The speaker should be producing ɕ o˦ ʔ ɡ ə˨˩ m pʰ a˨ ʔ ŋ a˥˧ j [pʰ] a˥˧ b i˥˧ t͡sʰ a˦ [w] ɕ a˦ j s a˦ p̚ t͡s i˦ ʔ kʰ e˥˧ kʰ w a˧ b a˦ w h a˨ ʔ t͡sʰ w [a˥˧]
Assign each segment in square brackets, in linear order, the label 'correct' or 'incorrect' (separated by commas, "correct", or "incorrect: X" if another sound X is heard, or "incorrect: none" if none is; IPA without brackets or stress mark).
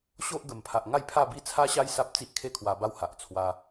correct, incorrect: none, incorrect: a˧